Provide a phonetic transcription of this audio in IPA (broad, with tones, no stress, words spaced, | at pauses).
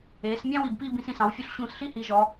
eː˩˧smʲɑ̃˥ wi˧˩bpiː˥˧bĩ˧s ĩ˧˩sɑ̃˩˧wfʲu˧ɬ ɕũː˧˩sɬi˥hiː˩˧ ʒɔ˩˧